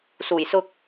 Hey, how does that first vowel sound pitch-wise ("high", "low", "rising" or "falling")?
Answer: low